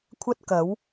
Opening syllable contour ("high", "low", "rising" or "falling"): high